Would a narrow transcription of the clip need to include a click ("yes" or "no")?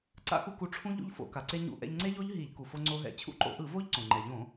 yes